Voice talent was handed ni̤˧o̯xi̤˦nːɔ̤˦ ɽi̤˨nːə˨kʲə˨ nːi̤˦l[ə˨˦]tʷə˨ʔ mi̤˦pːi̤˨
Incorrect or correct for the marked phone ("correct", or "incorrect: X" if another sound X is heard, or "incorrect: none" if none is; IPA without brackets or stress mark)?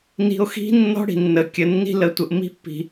correct